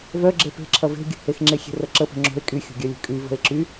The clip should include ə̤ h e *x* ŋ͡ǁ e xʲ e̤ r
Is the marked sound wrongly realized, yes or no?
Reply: no